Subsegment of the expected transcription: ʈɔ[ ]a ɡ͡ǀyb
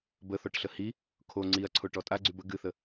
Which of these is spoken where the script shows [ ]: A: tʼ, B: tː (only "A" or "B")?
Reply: A